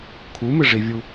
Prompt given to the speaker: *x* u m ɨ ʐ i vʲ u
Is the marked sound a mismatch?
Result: yes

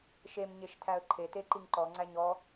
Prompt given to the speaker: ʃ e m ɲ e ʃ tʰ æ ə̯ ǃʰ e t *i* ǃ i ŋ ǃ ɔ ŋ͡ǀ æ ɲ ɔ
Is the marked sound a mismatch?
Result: yes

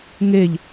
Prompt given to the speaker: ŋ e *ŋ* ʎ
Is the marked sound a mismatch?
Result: yes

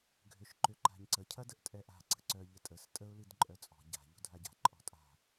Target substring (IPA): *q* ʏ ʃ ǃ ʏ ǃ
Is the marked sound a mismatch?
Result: yes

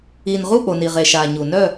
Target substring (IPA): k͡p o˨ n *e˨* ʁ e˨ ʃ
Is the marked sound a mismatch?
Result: yes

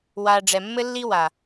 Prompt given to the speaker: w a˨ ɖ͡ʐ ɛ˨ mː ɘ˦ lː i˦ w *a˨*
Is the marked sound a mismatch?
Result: no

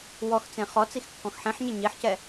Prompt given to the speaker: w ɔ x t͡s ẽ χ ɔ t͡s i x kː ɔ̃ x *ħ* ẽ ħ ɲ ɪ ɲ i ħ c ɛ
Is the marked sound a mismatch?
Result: no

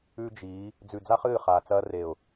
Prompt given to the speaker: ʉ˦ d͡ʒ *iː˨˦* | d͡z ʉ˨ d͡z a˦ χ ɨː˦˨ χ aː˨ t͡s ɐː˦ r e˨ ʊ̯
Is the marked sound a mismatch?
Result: no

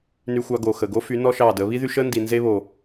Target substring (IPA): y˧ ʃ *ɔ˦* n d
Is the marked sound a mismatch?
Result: yes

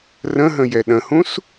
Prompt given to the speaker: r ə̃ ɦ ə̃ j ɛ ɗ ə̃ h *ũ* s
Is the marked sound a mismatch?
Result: no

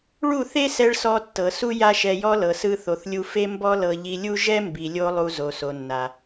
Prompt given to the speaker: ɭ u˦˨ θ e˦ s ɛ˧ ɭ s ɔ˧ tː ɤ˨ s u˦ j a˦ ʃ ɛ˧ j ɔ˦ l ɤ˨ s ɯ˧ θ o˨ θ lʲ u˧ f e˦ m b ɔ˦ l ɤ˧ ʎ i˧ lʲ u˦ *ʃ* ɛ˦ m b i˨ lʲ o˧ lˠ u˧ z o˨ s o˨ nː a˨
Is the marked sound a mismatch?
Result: yes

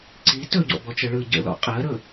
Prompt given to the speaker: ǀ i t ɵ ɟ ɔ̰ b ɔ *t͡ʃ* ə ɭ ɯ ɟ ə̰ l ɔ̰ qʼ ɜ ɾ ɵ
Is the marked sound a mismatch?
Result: no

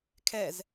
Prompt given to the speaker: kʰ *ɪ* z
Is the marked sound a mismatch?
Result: yes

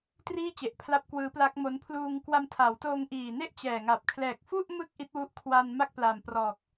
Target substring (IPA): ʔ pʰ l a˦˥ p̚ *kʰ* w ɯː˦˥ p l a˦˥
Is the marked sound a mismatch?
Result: yes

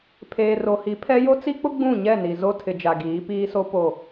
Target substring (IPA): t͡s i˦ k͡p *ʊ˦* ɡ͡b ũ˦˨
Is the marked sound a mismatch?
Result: no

